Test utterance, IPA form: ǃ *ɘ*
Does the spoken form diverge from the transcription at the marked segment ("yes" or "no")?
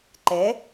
yes